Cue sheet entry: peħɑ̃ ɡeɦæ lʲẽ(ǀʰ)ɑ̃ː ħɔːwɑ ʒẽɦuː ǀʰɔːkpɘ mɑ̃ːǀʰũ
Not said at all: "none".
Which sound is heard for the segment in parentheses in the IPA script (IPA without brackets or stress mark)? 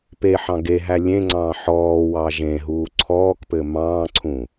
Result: ŋ͡ǀ